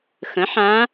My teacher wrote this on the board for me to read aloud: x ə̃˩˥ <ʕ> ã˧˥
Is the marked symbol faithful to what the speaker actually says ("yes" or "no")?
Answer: no